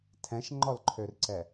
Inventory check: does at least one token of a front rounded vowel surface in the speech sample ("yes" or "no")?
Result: yes